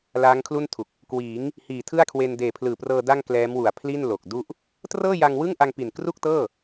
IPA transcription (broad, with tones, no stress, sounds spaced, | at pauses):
l aː˦˥ ŋ kʰ l u˥˩ n tʰ u˨˩ k̚ | k w iː˩˦ ŋ | h iː˨˩ tʰ ɯ˥˩ a̯ kʰ w e˧ n d eː˨˩ pʰ l ɯː˨˩ p r ɤː˧ d a˥˩ ŋ k l ɛː˦˥ m w u˨˩ a̯ pʰ l i˥˩ n l o˨˩ k̚ d u˥˩ ʔ | t r ɤː˥˩ j a˧ ŋ w ɯ˥˩ ŋ ʔ a˧ ŋ p i˨˩ n k r u˥˩ k̚ t ɤː˥˩